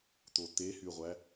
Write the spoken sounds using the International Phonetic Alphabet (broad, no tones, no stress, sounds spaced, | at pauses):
t̪ o t̪ e h y ʁʷ æ